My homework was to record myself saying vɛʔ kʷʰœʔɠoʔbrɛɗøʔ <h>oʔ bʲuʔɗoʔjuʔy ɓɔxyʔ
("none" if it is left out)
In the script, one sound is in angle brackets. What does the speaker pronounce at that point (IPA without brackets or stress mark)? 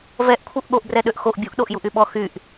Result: x